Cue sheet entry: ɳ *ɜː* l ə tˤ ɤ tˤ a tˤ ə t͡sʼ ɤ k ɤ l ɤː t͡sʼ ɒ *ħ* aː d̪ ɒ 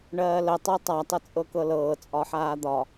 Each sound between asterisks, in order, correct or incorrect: correct, correct

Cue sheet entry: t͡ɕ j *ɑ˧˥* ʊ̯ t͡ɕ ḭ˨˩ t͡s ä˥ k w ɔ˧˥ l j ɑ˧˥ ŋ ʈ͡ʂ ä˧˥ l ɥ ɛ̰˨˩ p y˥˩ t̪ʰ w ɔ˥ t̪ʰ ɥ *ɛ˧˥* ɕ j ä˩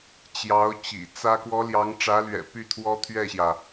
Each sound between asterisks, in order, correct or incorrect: correct, incorrect: ɛ˥˩

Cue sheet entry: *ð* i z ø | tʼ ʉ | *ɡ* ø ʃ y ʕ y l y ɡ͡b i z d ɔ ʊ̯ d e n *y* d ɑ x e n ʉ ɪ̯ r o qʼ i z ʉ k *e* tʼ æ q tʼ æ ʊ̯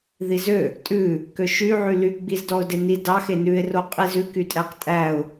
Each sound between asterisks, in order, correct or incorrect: correct, incorrect: k, incorrect: i, incorrect: y

